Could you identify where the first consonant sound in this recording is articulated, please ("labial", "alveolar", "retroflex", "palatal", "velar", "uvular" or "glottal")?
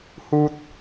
glottal